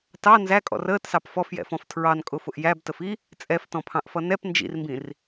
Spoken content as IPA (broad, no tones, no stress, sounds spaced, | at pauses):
t ɑ n z æ kʼ ɔ̰ r əː t s ɑ p f ɔ f j ɛ̰ f ɔ̃ f tʰ ɹ ɑ n kʼ ʊ f ʊ ʔ j æ b t ə f i | t͡sʼ ɛ f t ɔ̃ pʰ ɑ̃ ʔ f ʌ n ɛ p n d͡ʒ ḭ r m b ĩ r